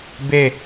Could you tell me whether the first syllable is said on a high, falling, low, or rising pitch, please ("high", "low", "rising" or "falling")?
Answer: falling